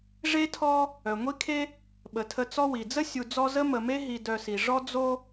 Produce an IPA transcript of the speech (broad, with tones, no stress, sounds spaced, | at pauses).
ʐ e˥ tʰ ɔ˦ | œ˩ ŋʷ i˦ kʰ e˦ | ɓ ə˩ tʰ ə˨ t͡s ɔ˦ w i˩ d͡z ə˥ sʲ u˨ d͡z ɔ˦ z ə˥ m ə˨ m e˥ ɦ i˨ d œ˨ s i˩ ʐ ɔ˥ d͡z o˦